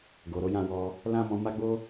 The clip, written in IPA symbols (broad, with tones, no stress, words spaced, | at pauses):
ɡo˨ɾo˨˦jã˦˨wɔ˧ | lã˦mɔ̃˧ ma˦ɡ͡bo˦